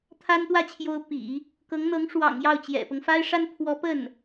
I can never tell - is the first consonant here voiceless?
yes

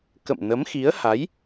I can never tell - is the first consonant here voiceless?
yes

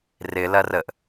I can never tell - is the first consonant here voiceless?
no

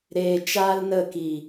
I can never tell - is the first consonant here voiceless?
no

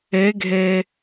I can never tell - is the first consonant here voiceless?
no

